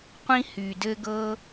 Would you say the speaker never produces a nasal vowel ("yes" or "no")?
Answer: no